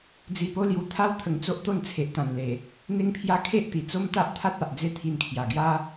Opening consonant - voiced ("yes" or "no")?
yes